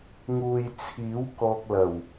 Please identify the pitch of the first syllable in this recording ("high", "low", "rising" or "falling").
low